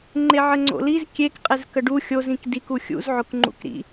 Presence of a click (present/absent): present